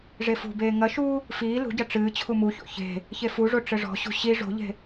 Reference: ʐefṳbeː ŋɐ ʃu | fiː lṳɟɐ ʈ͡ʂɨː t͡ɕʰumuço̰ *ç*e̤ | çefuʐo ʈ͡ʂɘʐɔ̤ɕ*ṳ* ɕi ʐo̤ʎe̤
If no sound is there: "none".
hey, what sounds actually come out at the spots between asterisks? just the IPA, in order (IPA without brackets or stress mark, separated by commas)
ç, ṳ